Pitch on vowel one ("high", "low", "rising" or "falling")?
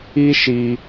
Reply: high